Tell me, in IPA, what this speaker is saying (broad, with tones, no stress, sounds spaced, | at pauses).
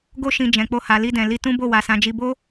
ɡ o˧ ʃ ĩ˨ d͡ʒ ɛ̃˨ k͡p o˧ h a˨ l i˧ d ɛ̃˨ l i˧ t ũ˦ b o˦˨ w a˨ s ã˨ d͡ʒ i˧ b o˦